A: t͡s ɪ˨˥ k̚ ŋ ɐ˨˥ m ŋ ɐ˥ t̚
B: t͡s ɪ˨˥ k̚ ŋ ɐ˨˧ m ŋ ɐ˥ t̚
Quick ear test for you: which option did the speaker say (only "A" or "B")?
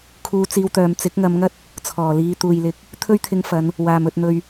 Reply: B